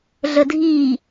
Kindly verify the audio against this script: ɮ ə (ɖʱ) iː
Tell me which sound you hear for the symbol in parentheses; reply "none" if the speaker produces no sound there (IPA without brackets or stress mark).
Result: dʱ